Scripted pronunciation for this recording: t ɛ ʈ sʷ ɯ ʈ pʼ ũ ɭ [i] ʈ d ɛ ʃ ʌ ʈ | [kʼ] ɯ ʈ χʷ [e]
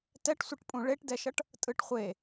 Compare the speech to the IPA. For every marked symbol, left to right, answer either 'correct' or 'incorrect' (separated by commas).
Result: incorrect, incorrect, correct